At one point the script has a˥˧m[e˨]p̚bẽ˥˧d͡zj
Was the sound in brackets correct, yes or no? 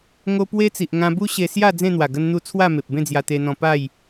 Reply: yes